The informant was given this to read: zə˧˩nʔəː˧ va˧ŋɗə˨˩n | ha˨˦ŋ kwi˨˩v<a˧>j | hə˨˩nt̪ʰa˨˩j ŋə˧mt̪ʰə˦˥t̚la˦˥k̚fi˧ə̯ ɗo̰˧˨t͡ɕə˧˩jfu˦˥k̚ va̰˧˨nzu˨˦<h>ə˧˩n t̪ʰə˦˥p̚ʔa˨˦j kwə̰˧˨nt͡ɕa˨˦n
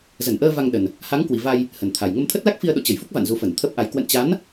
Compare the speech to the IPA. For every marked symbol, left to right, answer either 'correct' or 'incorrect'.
correct, incorrect

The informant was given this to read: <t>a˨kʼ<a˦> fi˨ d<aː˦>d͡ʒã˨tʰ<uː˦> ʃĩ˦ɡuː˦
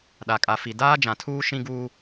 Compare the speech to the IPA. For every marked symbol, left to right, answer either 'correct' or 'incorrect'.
incorrect, incorrect, correct, correct

